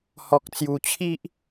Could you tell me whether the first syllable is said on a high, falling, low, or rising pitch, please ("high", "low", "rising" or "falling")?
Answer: low